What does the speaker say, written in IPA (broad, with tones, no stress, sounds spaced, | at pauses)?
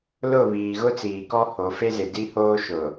l ʊ˦˨ β iː˨ ɣ ʊ˦ t͡s iː˨ k ɔ˦ h o˨˦ f e˦ z ɪ˨ d i˦ h oː˦ ʃ ʊ˨